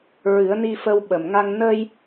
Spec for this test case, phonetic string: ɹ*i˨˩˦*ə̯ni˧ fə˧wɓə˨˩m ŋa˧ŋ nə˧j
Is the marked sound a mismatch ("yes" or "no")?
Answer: yes